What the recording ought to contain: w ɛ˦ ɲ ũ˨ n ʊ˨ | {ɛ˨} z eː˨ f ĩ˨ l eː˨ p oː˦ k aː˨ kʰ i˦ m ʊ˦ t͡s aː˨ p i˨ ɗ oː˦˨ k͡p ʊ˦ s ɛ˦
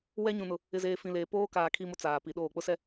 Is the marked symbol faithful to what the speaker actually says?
no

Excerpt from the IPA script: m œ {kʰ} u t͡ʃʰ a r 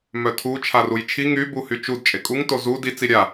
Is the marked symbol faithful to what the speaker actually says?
no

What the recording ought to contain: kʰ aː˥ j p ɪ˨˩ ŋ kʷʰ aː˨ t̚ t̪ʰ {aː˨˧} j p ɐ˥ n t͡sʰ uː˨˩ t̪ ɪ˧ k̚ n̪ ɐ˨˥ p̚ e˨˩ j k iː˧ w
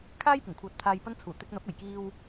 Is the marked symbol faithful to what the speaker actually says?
no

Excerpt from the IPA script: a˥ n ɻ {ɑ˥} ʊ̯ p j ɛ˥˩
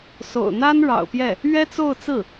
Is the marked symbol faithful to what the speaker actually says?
no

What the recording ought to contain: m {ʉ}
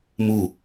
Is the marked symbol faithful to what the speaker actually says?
no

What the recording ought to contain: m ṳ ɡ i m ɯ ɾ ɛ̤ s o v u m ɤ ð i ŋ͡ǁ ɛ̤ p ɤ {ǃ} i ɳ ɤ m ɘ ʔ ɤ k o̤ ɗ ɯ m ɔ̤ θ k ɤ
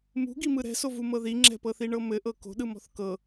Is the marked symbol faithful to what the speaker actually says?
no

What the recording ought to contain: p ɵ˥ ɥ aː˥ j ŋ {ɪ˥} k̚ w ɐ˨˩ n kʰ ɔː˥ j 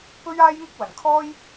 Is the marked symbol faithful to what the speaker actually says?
yes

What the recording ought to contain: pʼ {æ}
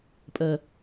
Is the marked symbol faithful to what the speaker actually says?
no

